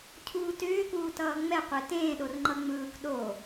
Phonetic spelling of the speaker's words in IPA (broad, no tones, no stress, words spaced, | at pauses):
cʰuːtʏːkuː tʌːŋ͡mɛqʷe tẽːɗor ŋ͡ǃʌŋ͡mɯːk ɗo